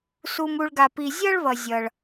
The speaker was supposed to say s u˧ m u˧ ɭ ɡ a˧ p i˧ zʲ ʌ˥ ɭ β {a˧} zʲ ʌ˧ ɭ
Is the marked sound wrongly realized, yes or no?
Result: yes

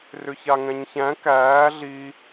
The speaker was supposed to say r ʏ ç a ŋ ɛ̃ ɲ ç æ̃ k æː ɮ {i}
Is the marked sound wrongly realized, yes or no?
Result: no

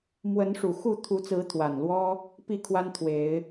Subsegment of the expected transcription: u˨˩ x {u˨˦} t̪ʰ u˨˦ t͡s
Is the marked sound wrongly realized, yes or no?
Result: yes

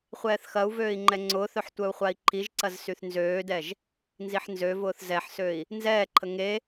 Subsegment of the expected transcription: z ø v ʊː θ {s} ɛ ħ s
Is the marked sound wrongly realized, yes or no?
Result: yes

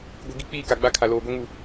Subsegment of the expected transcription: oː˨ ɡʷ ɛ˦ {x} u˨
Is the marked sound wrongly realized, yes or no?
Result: yes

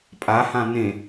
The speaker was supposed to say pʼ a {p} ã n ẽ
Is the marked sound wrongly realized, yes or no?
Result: yes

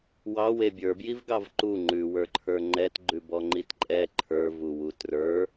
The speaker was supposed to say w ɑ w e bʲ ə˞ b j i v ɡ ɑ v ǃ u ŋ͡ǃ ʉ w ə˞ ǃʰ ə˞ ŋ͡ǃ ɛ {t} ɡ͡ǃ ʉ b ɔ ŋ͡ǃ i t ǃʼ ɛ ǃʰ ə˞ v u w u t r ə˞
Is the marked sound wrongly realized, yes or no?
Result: no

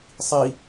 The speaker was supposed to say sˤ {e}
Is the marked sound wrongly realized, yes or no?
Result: yes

